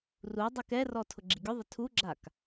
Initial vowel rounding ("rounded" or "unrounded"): rounded